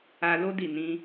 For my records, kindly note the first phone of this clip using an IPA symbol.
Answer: a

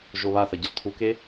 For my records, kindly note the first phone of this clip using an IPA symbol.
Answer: ʒ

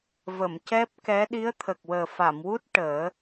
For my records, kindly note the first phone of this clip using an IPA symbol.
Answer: v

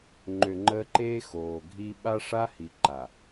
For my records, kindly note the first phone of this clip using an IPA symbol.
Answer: ŋ͡ǃ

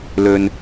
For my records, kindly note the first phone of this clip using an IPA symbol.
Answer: l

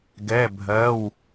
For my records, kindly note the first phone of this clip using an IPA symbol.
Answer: ɡ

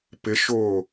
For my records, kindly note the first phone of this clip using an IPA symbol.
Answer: p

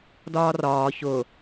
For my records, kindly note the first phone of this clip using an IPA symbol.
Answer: d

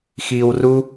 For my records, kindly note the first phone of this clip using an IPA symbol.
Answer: x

